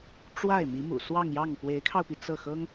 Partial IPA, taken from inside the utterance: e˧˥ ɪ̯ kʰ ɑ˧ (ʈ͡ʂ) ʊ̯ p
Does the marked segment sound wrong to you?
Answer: yes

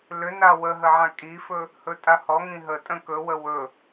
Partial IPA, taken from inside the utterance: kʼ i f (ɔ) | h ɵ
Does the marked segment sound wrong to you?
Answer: yes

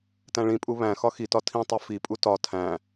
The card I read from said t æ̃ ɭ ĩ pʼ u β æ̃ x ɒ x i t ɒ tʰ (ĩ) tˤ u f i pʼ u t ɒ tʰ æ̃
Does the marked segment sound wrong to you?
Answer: no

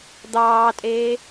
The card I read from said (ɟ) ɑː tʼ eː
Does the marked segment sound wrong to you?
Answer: yes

